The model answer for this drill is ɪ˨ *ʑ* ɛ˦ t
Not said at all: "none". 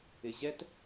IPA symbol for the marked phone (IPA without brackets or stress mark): ʑ